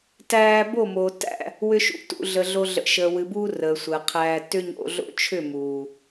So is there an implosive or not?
no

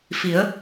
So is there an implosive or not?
no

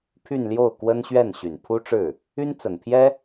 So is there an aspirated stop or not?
yes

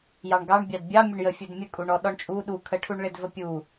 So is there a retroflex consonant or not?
yes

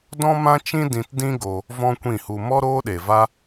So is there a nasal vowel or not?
yes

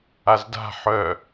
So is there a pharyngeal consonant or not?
yes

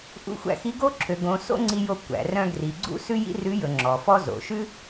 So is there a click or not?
yes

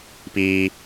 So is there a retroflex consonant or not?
no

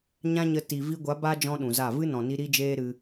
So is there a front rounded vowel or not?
no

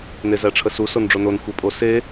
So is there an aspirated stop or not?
yes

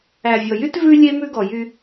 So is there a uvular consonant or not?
no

